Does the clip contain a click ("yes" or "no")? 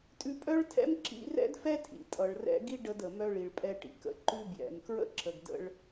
yes